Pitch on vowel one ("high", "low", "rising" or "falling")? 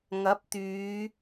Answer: rising